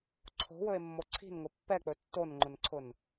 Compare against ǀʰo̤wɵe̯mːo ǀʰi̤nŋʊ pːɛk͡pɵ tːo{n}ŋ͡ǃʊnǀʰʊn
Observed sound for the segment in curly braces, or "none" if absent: n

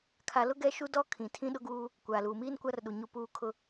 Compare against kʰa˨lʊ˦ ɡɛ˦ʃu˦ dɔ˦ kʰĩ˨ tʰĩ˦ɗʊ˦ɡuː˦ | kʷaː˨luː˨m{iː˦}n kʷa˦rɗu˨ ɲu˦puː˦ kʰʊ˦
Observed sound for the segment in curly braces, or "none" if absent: iː˦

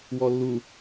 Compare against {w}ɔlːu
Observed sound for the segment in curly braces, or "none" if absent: w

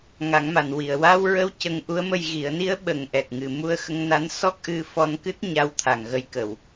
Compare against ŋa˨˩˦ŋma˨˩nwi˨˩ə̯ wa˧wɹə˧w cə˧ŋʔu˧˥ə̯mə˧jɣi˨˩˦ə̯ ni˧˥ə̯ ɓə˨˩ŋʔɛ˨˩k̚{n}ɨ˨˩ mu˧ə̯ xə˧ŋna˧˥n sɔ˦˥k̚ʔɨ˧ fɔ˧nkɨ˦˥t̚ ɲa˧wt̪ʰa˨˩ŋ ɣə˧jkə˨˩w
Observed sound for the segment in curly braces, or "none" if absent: ŋ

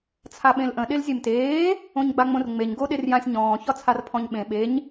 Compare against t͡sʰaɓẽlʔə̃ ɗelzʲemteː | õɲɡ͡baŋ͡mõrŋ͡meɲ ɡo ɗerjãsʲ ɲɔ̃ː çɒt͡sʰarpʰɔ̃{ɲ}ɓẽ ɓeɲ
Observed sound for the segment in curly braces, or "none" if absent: ɲ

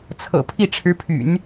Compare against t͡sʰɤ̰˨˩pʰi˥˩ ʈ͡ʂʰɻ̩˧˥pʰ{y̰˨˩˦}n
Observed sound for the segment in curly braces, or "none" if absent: y̰˨˩˦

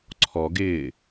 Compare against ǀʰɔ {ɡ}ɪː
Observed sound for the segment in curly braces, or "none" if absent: ɡ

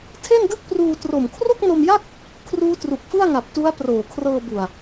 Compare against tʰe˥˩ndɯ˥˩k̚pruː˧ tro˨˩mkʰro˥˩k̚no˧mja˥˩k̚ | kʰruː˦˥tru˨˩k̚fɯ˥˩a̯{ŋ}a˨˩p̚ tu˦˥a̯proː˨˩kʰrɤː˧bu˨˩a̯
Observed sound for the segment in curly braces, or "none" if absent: ŋ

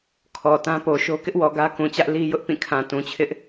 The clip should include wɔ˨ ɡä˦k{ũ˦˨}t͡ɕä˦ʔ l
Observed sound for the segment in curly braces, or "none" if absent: ũ˨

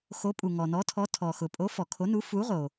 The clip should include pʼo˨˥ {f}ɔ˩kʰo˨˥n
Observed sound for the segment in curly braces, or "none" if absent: f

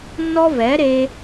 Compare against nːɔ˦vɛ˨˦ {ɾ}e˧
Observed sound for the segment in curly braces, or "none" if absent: ɾ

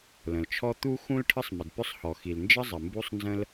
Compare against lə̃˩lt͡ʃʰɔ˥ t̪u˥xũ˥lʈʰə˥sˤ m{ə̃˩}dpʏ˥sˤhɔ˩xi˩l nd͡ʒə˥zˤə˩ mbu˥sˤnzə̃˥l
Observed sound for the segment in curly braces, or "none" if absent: ə˩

